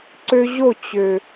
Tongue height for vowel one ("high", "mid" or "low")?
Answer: mid